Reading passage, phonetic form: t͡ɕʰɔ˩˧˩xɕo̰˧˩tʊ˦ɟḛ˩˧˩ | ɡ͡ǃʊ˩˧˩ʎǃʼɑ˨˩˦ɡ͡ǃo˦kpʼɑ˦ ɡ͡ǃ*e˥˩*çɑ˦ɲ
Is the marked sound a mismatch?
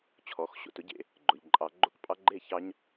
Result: no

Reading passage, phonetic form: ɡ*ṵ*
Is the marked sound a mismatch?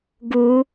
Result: yes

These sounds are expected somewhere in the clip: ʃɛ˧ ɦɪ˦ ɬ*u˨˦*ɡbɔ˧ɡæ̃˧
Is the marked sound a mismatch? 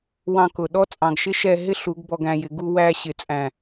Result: no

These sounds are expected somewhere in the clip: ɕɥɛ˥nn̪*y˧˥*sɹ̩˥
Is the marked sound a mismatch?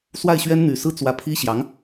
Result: yes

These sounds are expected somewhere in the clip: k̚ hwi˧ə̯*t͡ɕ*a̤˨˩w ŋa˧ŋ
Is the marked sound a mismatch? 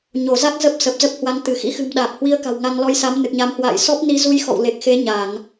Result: yes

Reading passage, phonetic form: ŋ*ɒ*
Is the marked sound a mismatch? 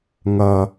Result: yes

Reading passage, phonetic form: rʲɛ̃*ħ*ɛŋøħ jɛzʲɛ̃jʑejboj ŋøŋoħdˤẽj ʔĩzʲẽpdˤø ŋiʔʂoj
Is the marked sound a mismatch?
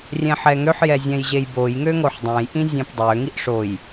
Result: no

